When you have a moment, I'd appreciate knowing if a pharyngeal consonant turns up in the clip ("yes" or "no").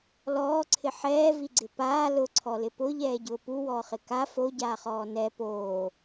yes